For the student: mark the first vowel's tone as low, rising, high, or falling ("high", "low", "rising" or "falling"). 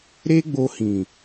high